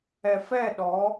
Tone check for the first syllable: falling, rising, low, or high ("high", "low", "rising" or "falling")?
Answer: low